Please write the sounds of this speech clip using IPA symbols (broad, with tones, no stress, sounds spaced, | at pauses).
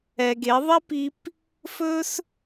ɛ˨ ɡ e˨˦ ðˤ ɛ˦ p i˧ p | f ɵ˦ s